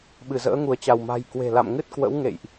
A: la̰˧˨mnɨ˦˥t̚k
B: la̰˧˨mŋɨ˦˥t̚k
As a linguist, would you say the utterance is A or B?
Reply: B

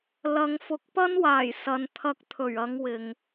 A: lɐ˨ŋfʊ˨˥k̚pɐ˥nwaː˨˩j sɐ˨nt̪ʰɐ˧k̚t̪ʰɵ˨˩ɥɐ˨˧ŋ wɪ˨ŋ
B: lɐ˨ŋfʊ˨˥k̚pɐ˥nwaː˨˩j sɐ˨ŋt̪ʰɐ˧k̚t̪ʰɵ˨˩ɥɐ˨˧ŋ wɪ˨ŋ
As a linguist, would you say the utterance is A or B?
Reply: A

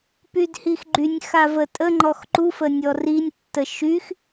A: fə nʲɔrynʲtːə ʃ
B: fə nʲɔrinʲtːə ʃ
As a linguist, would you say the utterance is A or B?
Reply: B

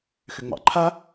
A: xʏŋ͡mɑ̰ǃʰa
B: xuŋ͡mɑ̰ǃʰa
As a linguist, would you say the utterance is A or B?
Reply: A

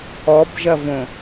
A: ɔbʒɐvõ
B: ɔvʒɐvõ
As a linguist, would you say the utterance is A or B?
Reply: A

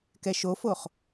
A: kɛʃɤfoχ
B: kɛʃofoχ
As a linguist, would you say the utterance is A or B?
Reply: B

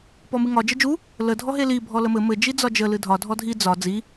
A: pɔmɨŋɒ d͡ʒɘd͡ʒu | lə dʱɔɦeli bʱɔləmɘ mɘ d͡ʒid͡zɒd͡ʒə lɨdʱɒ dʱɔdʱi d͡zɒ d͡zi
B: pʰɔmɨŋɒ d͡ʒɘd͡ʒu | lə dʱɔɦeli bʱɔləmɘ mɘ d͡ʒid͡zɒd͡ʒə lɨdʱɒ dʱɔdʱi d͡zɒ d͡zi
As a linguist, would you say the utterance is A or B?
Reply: A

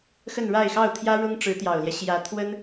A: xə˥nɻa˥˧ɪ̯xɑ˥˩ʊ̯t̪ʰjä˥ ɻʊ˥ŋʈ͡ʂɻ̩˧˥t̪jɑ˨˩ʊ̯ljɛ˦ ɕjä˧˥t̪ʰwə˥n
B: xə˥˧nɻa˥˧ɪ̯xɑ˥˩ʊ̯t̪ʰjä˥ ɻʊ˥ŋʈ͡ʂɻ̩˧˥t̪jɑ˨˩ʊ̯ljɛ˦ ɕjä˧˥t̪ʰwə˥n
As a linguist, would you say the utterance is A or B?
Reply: B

